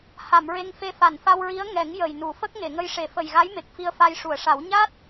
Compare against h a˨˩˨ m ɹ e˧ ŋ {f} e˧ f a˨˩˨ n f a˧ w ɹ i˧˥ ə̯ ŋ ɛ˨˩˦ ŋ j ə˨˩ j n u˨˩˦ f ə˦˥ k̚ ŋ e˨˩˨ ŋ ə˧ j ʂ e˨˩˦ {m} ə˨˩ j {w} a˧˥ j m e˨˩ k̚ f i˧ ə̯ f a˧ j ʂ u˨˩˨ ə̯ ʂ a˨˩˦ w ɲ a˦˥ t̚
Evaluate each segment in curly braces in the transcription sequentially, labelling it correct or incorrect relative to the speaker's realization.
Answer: correct, incorrect, incorrect

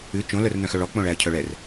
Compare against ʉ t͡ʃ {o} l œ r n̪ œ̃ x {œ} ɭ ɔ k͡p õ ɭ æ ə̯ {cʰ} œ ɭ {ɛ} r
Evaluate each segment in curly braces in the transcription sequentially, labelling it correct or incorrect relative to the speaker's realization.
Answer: incorrect, correct, correct, correct

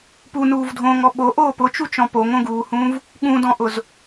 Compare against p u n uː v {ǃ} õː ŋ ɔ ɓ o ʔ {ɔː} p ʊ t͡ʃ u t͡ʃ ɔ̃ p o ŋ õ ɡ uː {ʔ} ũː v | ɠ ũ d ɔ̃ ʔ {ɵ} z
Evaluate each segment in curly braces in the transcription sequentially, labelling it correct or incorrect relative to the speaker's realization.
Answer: incorrect, incorrect, incorrect, incorrect

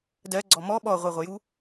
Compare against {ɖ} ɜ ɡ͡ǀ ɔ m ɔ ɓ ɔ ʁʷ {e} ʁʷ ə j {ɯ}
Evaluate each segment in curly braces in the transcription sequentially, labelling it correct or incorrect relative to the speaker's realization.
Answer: incorrect, correct, incorrect

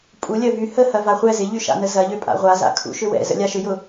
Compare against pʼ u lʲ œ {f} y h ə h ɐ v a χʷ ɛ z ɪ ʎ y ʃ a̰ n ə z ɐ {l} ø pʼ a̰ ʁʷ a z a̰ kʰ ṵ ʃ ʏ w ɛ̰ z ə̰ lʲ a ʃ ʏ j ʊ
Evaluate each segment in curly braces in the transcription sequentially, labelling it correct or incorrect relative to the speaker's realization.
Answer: incorrect, incorrect

